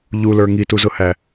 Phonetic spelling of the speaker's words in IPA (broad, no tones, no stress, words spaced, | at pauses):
ʎulə˞ ŋituzʊhæ